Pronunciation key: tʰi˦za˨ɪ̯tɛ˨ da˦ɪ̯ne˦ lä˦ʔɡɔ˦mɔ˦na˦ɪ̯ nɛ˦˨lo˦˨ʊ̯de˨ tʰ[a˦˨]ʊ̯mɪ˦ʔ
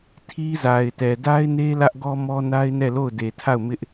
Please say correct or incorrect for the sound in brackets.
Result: correct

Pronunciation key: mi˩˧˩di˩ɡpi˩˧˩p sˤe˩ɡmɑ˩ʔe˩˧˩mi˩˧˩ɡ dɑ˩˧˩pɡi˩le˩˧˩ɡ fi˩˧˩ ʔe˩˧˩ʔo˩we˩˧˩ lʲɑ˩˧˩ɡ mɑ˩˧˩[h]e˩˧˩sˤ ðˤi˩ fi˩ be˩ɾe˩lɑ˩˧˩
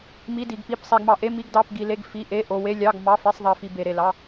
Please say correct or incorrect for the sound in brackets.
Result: incorrect: f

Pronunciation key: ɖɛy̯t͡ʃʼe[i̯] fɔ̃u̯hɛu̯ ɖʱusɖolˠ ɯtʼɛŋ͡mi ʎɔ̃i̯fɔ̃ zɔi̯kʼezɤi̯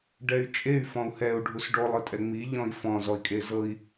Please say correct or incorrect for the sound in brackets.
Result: incorrect: y̯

